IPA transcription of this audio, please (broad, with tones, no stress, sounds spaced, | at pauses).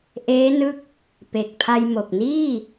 ʔ eː˦˥ n ɯ˦˥ k̚ | p e˨˩ k̚ pʰ a˧ j m o˨˩ k̚ n iː˥˩